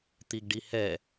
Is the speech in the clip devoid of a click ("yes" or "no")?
yes